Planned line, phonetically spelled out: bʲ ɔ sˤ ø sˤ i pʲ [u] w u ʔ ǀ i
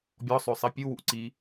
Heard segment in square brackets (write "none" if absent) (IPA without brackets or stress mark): u